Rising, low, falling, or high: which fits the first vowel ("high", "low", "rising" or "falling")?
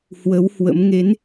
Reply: rising